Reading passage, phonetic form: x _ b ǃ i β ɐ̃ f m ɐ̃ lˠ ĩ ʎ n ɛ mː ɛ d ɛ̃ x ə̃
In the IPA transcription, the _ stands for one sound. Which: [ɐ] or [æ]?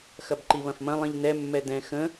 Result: ɐ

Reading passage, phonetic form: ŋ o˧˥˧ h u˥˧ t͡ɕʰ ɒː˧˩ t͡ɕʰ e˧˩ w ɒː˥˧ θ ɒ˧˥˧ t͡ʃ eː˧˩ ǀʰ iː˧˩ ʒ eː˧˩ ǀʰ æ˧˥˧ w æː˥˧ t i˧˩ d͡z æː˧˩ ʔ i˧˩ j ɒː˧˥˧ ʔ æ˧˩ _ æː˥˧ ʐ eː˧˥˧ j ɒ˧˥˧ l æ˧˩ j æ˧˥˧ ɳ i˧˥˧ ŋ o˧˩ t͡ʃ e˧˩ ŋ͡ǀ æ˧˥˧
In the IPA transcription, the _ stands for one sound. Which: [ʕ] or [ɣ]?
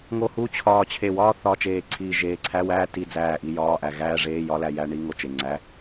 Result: ɣ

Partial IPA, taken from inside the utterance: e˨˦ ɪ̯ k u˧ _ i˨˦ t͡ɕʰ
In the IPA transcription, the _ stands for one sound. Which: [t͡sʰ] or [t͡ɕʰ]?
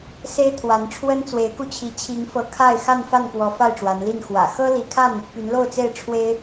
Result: t͡ɕʰ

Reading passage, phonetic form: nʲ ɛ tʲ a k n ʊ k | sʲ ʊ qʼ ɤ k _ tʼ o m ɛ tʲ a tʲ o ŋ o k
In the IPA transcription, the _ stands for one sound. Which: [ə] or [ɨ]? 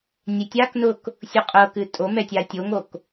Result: ɨ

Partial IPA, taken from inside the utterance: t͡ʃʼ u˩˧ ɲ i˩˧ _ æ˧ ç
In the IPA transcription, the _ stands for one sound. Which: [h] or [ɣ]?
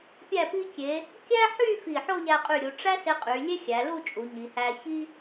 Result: h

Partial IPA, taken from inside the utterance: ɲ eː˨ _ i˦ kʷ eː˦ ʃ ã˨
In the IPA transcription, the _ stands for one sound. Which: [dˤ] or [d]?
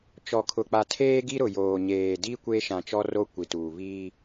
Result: d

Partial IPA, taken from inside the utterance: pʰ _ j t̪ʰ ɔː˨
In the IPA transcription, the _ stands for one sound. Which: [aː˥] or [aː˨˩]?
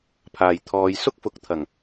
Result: aː˨˩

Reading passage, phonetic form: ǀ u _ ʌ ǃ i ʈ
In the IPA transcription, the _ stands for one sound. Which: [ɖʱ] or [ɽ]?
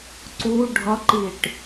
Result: ɖʱ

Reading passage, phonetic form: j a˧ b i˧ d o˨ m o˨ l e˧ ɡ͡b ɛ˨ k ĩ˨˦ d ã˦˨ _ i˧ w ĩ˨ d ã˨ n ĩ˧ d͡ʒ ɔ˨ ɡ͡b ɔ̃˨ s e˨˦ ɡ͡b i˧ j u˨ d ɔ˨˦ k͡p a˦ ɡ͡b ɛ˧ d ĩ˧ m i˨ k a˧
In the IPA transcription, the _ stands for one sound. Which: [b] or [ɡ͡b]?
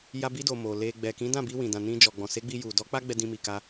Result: b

